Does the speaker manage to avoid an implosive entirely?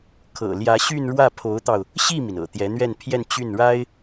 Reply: yes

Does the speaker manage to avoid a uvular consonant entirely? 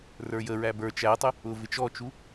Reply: yes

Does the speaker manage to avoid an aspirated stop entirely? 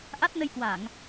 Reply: yes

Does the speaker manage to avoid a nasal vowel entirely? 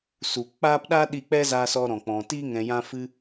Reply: no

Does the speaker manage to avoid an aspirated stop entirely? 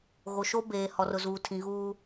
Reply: no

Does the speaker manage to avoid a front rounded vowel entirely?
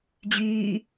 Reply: no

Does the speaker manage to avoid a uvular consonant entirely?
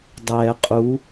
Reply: no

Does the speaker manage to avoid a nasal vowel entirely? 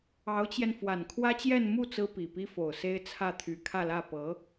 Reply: yes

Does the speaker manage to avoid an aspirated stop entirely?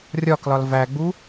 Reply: yes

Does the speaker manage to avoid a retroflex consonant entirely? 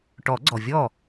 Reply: no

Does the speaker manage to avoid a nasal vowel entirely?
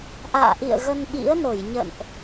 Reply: yes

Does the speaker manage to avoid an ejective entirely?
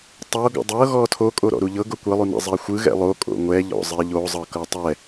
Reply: no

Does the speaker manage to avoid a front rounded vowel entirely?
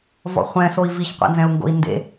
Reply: yes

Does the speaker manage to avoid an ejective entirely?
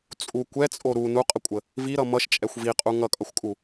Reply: no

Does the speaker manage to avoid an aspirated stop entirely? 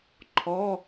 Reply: no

